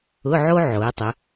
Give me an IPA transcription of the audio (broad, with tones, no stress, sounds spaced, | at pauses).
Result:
ʊ˧˥˧ ʕ o˥ ʕ o˩˧ e̯ tˤ ə˩˧